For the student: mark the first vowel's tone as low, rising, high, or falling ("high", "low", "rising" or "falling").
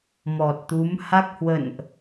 low